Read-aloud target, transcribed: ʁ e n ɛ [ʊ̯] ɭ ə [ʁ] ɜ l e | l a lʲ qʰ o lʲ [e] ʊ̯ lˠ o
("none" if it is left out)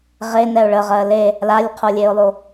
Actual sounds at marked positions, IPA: ʊ̯, ʁ, e

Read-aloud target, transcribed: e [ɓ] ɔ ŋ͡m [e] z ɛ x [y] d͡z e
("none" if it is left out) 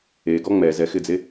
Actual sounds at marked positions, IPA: ɡ, ɛ, ɪ

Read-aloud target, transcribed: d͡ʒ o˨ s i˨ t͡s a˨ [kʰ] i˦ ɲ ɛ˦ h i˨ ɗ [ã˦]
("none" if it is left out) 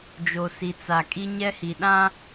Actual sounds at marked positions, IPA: kʼ, ã˦

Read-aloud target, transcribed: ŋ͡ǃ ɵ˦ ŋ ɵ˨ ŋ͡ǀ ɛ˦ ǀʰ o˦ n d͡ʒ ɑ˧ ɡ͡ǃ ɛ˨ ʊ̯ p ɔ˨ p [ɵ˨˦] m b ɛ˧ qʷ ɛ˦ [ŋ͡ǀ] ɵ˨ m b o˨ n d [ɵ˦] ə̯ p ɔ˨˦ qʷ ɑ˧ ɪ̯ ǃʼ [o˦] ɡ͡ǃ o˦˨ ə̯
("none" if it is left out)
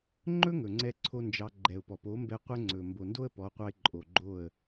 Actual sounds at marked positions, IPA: o˨˦, ŋ͡ǀ, o˦, o˨

